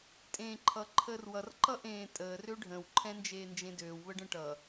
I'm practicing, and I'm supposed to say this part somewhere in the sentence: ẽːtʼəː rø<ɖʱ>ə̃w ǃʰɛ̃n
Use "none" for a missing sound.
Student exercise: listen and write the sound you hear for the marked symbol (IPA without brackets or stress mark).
ɖʱ